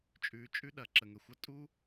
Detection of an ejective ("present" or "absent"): present